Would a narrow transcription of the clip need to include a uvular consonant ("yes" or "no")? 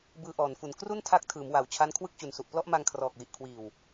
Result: no